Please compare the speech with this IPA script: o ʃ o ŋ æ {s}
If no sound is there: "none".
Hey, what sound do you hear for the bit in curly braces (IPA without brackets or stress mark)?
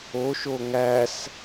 s